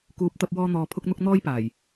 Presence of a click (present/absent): absent